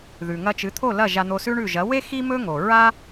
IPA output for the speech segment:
ð ʉ˩ ŋ ɐ˧ t͡ʃ ɨ˩˥ t̪ʰ o˥˩ l ɐ˥˩ ʒ a˧ n̪ o˧ s ʉ˥ ɳ ʉ˥˩ ʒ ɐ˩˥ w e˥ x i˥ m ɵ˥ ŋ o˩ ɹ a˥

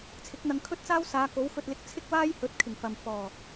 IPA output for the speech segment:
t͡sʰ ɪ˨˥ k̚ n̪ ɐ˧ ŋ kʰ ɵ˥ t̚ t͡s aː˥ w s aː˨˧ k o˨˥ w f ɵ˧ t̚ l ɪ˧ k̚ t͡sʰ ɪ˥ k̚ w aː˥ j h ɵ˨˥ t̚ kʰ ɪ˨˩ ŋ f ɐ˨ m f ɔː˨˩

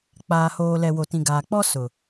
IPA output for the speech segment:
k͡p aː˨ h oː˨ l ɛ˨ w o˨ t ĩ˨ ɡ aː˨ k͡p ɔ˦ s ʊ˨

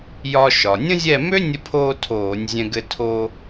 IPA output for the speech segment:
j ɒ˧ ʃ ɒ˩ nʲ ə̃˥ zʲ ɛ˥˨ m ø˥ nʲ ə˧ pʰ oː˧ tʰ oː˧˩˧ nʲ zʲ ɛ̃˧ ɡ ɘ˧ tʰ oː˧

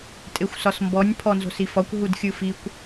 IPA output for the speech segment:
tʼ e xʷ s ɒ s m b ɔ nʲ pʰ ɔ n z o̤ s i f ɒ kʷ ɦ u d xʲ ɯ f i kʷ

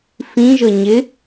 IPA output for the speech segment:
f ĩ ʒ ɤ ɲ ɪ

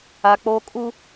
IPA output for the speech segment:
a˦ k͡p o˦ kʼ u˦

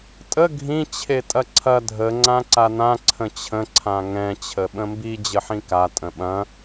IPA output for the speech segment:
tʼ ə ɡʱ ĩ t͡ɕʰ e tʼ ɐ ǀʰ ɐ dʱ ə ŋ͡ǀ ã ǀ a n ã ǀʰ ə̃ t͡ɕʰ ə̃ ǀʰ ã ŋ ɛ̃ t͡ɕʰ ə ɓ ə̃ m b i d͡ʑ ə ħ ĩ k a tʼ ə̃ ɓ ɐ̃

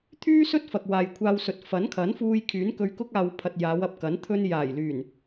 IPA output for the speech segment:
t̪ʰ yː˥ s ɵ˥ t̚ f ɐ˨ k̚ w aː˨ j kʷʰ aː˧ w s ɵ˨ t̚ f ɐ˨˥ n kʰ ɐ˨˥ n f uː˧ j kʰ yː˨˥ n k ɵ˧ ɥ k ʊ˥ k̚ aː˨ w pʰ ɐ˨ t̚ j aː˨˧ w ɐ˨ p̚ k ɐ˨˥ n t̪ʰ ɵ˥ n j aː˨˩ j l yː˨˩ n

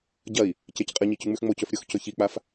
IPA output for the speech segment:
ɟ ɐ i̯ | c e c qʼ ɨ ɲ i c ʉ ŋ͡m ʉ x ŋ͡m o c ɵ f ɾʲ o x c ɵ ç i k͡p a f

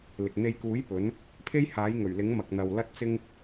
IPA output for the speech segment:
l ɪ˨ k̚ n̪ e˧ j k uː˨˥ j p ɵ˨˧ n | pʰ e˥ j h aː˨˥ j ŋ ɵ˨˩ ɥ l ɪ˨˥ ŋ m ɐ˨ k̚ n̪ ɐ˨ w l ɐ˥ t̚ t͡s ɪ˥ ŋ

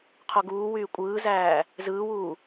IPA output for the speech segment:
qʰ o ɡ uː w yː kʷʼ ɯː z æː | z ɯː w uː

